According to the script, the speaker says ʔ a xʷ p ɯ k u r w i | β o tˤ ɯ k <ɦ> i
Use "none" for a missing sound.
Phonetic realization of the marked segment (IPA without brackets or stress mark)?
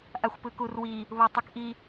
ʔ